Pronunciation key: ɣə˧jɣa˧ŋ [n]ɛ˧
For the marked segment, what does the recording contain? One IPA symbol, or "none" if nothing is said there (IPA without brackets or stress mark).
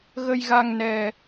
n